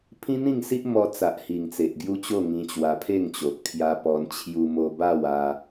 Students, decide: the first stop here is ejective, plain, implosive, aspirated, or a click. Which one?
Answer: aspirated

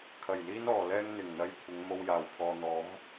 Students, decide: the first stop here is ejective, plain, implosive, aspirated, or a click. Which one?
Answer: aspirated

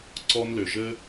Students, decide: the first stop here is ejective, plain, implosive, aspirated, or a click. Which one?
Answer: click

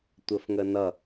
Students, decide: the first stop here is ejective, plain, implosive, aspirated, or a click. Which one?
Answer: plain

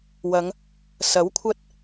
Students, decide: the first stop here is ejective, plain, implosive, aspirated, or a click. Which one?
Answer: aspirated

